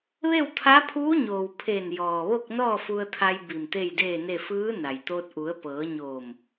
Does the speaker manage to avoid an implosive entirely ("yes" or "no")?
yes